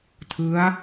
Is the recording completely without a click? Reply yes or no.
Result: yes